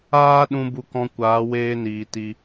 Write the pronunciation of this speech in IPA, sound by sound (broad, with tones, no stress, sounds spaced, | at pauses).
aː˦ ɗ ũ˧ b u˧ k ɔ̃˧ kʷ aː˨˦ w eː˧ n iː˨ t i˧